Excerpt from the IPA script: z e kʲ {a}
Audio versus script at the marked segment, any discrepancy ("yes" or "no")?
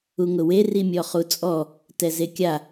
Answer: no